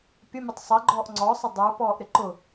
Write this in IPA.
pʲ ə mʲ ʊ tˤ sˤ ɪ ɡ͡ǃ ɔː ʔ ŋ͡ǀ ɔ sˤ ɪ dˤ ə˞ p ɔː ʔ ɾ ɪ ǃ ʊ

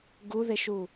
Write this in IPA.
ɡ u ð e ʃ u

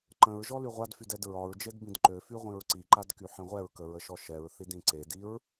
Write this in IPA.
ǃ ə̃ ɹ ʒ ɔ l y ʁʷ a d f y d ɛ d ɹ ɒ ɹ d͡ʒ e d b ĩ d ǃ ø f y ʁʷ ĩ ɹ ǀ i ǃ a d k y ħ ĩ ʁʷ ɛ ɹ k ə ɹ ə ʃ ɔ ʃ ɛ ɹ θ i d ĩ ǀ e d i ɹ

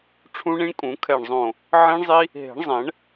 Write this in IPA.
ʈ͡ʂʰ ũ˦˥ ɳ ĩ˦˥ ɳ kʼ ũ˨˩˦ kʰ ɛ˧˩ ɳ zˤ õ˧˩ | ʕ ĩ˦˥ ɳ zˤ i˦˥ | ɦ e̤˨˩˦ ɳ zˤ ɛ̃˨˩˦ ɳ

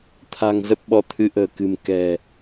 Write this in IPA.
t̪ʰ a̤˨˩ ŋ z ə˦˥ p̚ ɓ ɔ˧ t̪ʰ ɨ˨˦ ʔ ə̤ː˨˩ k ɨ̤˨˩ m k ɛ̤˨˩

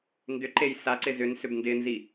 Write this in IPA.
n d ʏ ǃ e j s a ǀ ɪ z ʏ n s ʏ b n d ɪ n z i

